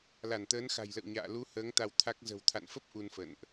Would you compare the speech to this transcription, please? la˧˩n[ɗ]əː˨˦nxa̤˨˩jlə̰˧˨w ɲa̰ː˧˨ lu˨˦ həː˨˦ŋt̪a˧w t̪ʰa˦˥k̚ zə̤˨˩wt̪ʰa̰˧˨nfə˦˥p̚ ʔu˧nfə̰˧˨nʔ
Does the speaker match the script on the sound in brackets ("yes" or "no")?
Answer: no